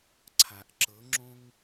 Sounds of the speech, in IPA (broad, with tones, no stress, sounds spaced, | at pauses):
ǀʰ a˨ ʔ ǁ ɤ˨˦ ŋ͡ǁ õ˦ ŋ